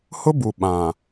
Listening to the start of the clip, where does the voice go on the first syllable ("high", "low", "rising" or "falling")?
high